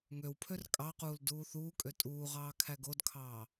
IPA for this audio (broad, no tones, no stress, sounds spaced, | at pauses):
ŋ ø w pʰ ø r kʼ ɑ q uː l d uː θ uː kʼ ø tʼ uː ʁ ɑː kʰ æ ɡ o d kʰ ɑː